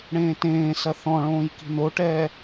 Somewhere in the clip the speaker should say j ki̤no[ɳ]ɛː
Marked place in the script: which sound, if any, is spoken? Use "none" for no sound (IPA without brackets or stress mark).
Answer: ʈ